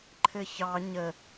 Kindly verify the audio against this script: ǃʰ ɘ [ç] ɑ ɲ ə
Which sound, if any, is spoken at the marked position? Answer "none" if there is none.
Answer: ç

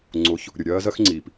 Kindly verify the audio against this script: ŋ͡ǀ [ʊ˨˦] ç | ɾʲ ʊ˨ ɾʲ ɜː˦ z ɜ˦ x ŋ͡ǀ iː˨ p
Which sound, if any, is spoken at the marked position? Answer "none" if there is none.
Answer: ʊ˨˦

